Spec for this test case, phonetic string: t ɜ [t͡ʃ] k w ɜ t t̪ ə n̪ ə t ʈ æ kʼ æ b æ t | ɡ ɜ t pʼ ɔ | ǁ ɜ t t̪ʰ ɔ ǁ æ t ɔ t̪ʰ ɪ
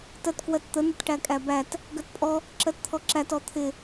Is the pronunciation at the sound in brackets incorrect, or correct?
incorrect